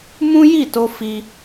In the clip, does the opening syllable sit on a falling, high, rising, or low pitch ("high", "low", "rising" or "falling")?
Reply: high